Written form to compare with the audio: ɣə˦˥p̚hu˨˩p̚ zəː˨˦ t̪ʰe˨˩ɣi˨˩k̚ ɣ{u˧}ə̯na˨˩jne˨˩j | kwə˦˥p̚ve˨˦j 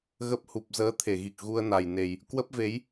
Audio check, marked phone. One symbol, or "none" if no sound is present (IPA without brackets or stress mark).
u˧